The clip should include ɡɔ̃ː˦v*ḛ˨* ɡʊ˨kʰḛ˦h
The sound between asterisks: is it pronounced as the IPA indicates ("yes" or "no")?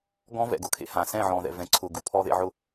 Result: no